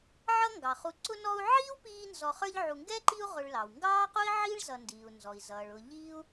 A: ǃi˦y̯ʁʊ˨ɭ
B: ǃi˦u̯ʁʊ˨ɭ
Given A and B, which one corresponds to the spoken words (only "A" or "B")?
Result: B